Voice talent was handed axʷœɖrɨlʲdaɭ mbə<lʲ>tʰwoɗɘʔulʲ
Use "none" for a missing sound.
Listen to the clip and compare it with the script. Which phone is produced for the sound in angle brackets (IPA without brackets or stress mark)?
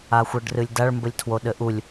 lʲ